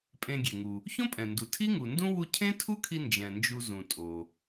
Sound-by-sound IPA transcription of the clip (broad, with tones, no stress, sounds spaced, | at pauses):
pʼ ẽ˧ ɡʲ e˩ ŋ u˩ | ç õ˥ pʼ ɛ̃˩ n d u˩ tʰ i˥ ŋ u˩ n d ũ˥ w u˧ cʰ ẽ˥ tʰ u˥ kʰ i˧ n d͡ʒ ɛ̃˩ n d͡ʒ u˧ z ũ˩ tʼ o˩